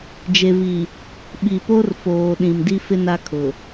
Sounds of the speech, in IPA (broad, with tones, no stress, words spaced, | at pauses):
d͡ʒe˨vi˨ | ɓi˨po˦rfoː˨ ɗĩ˨mdi˦fɪ˦ na˦kʰʊ˨